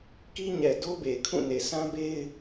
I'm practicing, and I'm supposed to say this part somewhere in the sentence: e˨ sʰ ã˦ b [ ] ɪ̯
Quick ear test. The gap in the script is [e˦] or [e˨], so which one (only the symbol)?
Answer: e˦